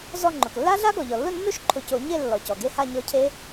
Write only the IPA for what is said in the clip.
z ɔ˧˩ ŋ͡ǃ ʊ˩ k lː a˦˥ ɮ a˦˥ ɡ ɔ˩ ʎ ɔ˩ lː ʊ˥˨ nː o˦˥ ʃ ǃʰ ʊ˨˩˦ c o˨˩˦ ɲ e˥˨ lː ɔ˩ c ɔ˩ ɡ e˦˥ h a˥˨ ɲ ɔ˦˥ cʰ e˦˥

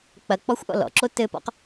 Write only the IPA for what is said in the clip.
k͡p ɐ k͡p ɔ xʷ ʔ ɔ̰ l ɔ̰ ǁ o t ɘ p ɔ̰ q

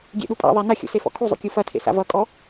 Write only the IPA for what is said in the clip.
ɡʲ ḛ ɗ u pʼ a̰ ðˤ a n ɐ xʲ ṵ s e f ɔ̰ kʰ u zˤ ṵ kʲ u f ɐ tʰ ḛ s a̰ v ʌ kʼ ɔ

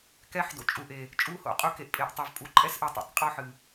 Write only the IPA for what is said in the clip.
k ɛ˦ ħ d o̰˨ t͡ʃʼ u˨ ʔ e˨ | t͡ʃʼ u˦ h o̰˦ qʼ u˦ k e˨ ʔ pʼ e˨ ʔ tˤ ɛ˨ v pʼ u˨ ǃʼ ɛ˦ s ʔ ɨ˨ tˤ o̰˨ tˤ qʼ ɔ˦ ħ ɨ˨

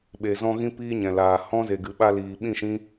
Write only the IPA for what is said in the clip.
ɓ e˨ z ɔ̃˧ ɣ ĩ˦ p iː˦ ɲ ɛ̃˨ l aː˨ h ɔ̃˦ z e˨ ɡ ɨ˨ ɓ a˧ l iː˨ ɓ ĩ˦˨ ʃ ĩ˦

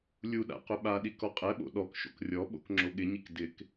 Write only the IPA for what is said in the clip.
lʲ u ɗ a̰ q ʊ ɓ a ɗ i k ɔ qʼ ɛ ɓ o̰ ɗ ɔ k ʃ o̰ k rʲ ɔ ɓ o̰ k ŋ͡ǁ o ɠ ɪ ɲ i k d ɪ k

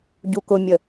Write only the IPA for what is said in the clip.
ɟ u k ʊ mʲ ə

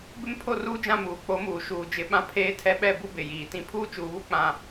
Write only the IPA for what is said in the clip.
b ɪ˦ m pʰ o˦˨ r uː˦ d͡ʒ ã˦˨ m uː˨ k͡p o˨˦ m uː˨ ʃ uː˨ d͡ʒ ɪ˨˦ ɓ ã˦ pʰ eː˦ tʰ ɛ˦ ɓ ɛ˦˨ b u˦ b ɪ˨ j iː˨ t ĩ˦ pʰ uː˦ t͡ʃ uː˨ β u˦ k͡p ã˦˨

